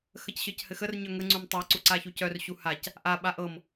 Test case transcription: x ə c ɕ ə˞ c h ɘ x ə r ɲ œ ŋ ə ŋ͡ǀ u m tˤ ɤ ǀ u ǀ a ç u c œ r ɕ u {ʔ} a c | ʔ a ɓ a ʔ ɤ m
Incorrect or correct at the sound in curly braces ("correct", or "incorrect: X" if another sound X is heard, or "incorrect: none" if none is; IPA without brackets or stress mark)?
incorrect: h